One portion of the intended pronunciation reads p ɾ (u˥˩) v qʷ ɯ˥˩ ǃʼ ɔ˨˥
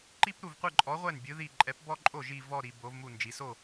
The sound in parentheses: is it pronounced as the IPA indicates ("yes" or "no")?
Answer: yes